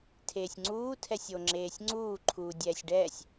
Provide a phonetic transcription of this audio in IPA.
tʰ eː sʲ ŋ͡ǀ uː tʰ ɛ sʲ o ŋ͡ǁ eː sʲ ŋ͡ǀ uː ǃʰ uː dʲ ɛː sʲ ɖ ɛː sʲ

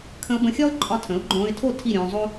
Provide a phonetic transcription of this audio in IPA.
kʰ ə̃˧ ʊ̯ b ə̃˧ xʲ ɒ˥ ʊ̯ ǃʼ ɒ˧ tʰ ə̃˩˥ ʊ̯ ɡ͡ǃ õː˧ ɪ̯ tʰ o˥˩ tʰ i˥˩ ɾʲ õː˧ zˤ o˥

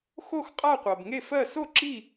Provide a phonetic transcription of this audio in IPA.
x o˥˧ x qʼ a˥˧ qʷ ɜ˨ b ŋ e˥˧ f ɜ˥˧ s o˥˧ ǁ i˥˧

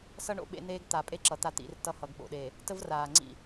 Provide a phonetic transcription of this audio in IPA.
s ʌ˦ ɳ o̰˨ ɓ ḛ˦ n̪ eː˦ ɡ t̪ a˨ pʼ e˦ ǁ ʌ˨ t̪ a˦ t̪ ḭ˨˦ r t ʌ˦ h ʌ˨ ɡ ɓ o̰˨ ɗ eː˨ | t ə˦ v r aː˨ ŋ͡ǀ ḭ˦˨

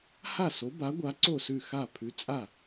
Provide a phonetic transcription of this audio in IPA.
h a˥˩ s o˨˥ b a˨˥ ɡʷ a˨˥ ǀ o˥˩ s ʉ˥˩ x a˥˩ pʰ ʉ˨˥ t͡sʼ a˥˩

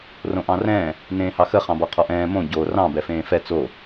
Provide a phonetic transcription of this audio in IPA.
r õ ʔ ɑ̃ r ɛ̃ː | n ẽː h ɑ x ə χ ɑ̃ b ɔ qʰ ɔ ʔ ɛ̃ː m õ ɟ o r ɑ̃ b ɛ f ẽː f ɛ t͡s o

